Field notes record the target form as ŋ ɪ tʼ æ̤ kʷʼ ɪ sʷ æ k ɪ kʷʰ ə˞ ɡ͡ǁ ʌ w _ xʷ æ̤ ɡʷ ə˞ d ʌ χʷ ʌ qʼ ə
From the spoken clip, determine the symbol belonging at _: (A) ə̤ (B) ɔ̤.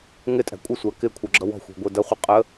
B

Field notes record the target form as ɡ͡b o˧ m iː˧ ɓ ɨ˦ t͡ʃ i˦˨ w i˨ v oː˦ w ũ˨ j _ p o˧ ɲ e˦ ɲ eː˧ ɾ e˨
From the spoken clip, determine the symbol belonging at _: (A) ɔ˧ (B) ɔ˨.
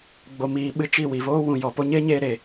B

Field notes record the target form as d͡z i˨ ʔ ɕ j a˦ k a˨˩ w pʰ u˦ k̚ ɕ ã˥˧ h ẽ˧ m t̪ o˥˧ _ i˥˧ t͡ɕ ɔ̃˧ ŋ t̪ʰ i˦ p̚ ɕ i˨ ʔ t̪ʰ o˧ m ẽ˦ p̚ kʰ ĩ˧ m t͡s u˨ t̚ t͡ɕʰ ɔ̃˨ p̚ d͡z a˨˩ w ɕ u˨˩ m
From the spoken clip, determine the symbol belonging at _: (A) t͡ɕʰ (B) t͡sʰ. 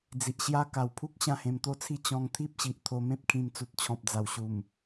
B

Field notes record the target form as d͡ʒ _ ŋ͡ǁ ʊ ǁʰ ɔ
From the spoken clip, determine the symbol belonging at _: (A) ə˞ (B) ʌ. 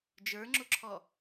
A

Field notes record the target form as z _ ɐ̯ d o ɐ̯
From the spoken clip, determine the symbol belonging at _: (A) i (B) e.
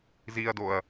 A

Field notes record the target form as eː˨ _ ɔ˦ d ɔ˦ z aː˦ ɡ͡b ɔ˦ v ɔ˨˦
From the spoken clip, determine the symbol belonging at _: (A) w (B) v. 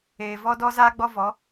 B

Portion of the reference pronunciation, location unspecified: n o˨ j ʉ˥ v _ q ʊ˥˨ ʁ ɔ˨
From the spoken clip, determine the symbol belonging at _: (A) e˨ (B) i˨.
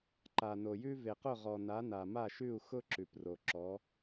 A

